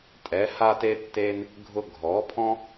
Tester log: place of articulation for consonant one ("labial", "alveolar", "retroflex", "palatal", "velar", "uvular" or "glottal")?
alveolar